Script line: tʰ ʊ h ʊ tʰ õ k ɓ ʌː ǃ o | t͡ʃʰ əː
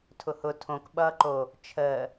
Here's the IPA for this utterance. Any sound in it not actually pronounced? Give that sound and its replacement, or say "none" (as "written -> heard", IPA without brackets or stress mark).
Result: none